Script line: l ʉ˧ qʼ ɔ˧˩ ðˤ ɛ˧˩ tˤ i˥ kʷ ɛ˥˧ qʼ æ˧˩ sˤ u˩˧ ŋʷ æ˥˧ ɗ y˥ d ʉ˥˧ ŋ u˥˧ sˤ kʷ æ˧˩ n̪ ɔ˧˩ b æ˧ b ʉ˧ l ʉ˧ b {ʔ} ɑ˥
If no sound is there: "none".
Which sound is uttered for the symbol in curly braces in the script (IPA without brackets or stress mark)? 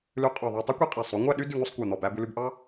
ʔ